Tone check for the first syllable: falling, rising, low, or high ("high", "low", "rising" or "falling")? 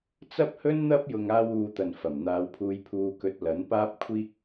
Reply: high